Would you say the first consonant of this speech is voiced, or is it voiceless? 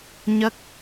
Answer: voiced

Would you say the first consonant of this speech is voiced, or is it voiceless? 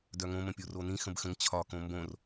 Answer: voiced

